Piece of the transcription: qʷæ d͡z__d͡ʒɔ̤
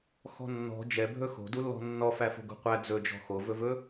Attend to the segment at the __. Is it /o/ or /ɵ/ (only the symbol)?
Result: ɵ